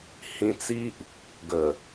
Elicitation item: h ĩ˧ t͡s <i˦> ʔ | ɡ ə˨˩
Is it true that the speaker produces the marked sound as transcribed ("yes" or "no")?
yes